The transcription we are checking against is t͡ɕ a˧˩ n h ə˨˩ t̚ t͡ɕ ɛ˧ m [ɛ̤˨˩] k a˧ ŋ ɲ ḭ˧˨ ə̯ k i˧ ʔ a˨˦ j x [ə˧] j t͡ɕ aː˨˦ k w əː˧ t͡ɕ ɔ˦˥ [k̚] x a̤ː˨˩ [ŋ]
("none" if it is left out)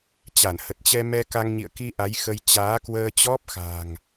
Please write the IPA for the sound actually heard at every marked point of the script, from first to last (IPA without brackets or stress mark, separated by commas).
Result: ɛ˧, ə˧, p̚, ŋ